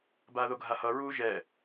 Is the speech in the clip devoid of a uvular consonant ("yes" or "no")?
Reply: yes